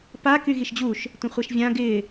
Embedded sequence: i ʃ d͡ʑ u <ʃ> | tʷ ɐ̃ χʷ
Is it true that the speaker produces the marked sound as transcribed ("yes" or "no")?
yes